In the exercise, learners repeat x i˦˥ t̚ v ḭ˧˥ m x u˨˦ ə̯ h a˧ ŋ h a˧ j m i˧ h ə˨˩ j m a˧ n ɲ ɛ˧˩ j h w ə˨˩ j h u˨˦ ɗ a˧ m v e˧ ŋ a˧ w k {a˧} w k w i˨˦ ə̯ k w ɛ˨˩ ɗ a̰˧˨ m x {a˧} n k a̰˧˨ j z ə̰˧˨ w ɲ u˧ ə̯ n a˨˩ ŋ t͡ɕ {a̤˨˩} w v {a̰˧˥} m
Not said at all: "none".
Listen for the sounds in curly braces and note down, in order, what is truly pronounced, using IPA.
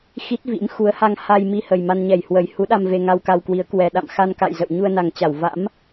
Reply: a˧, a˧, a˧˩, a̰˧˥

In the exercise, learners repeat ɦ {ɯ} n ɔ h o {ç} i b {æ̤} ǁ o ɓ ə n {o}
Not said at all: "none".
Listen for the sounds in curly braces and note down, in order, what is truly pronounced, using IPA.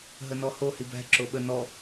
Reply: ə, h, æ̤, ɔ

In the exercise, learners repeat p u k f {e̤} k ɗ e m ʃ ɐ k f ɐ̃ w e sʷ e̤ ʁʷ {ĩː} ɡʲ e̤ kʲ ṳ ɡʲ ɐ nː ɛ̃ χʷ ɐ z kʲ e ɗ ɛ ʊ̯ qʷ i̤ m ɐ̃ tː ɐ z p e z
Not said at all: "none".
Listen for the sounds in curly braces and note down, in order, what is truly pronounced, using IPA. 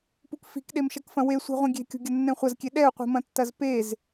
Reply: i̤, ĩ

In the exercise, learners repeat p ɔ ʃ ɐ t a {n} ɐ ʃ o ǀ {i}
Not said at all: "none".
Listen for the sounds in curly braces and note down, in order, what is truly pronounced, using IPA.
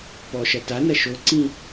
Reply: n, ĩ

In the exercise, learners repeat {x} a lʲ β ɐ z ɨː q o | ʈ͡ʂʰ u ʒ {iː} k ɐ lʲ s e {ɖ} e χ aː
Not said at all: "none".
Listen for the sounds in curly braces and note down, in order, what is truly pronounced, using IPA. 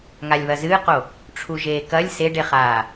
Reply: ŋ, eː, ɖ

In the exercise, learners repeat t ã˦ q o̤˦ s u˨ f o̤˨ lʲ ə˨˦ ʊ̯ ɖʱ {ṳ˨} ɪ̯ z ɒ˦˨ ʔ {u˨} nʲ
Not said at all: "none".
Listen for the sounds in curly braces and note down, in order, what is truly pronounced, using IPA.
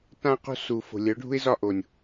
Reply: ṳ˦, o˨

